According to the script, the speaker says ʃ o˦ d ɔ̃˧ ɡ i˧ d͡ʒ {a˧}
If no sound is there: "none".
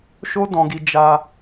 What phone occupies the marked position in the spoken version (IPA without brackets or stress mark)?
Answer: a˧